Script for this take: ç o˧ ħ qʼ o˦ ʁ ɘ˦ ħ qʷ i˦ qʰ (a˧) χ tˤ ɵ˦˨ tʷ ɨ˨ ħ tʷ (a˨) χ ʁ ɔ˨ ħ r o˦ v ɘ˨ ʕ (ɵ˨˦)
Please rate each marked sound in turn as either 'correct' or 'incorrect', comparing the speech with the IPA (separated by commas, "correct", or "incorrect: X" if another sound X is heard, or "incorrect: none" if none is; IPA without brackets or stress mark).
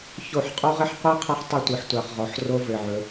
incorrect: a˦, correct, correct